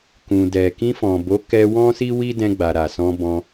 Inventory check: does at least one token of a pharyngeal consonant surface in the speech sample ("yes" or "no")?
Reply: no